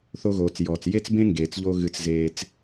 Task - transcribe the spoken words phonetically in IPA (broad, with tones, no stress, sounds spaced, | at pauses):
θ o˨ ɣ oː˩ t͡s j ɔː˩ t͡s j e˥ t͡s b ẽ˥ ŋ ɡ eː˩ t͡s ʎ oː˦ ɣ ɨ˨ t͡s z eː˨ t͡s